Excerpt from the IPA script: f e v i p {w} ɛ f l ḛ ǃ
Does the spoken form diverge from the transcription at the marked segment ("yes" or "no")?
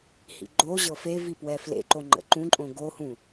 no